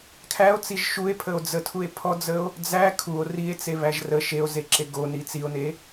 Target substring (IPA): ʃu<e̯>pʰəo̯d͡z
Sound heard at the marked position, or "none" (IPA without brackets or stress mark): e̯